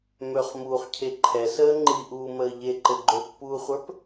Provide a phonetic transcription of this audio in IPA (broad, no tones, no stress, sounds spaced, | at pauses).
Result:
m ø χ m uː χ cʰ e ǃʰ ɛ s əː ŋ͡ǃ i ʔ uː m əː ʎ e ǃ ɘ ɡ͡ǃ ø pː uː χʷ ə˞ p